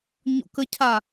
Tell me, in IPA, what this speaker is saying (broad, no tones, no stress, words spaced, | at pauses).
ɲo̰kəcʰa